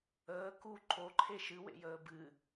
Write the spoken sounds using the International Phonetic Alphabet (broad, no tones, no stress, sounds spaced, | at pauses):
əː k u ǃʰ o ǃʰ e ʃ ɨ w ḛ j əː b ɨ